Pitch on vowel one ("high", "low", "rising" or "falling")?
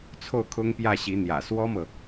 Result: falling